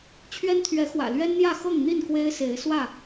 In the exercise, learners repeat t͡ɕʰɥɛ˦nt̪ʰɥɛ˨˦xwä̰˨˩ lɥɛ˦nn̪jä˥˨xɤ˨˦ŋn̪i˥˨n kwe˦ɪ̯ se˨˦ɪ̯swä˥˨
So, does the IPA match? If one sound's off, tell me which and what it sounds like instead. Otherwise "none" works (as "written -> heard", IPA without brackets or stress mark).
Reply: ɤ˨˦ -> ɤ˥˨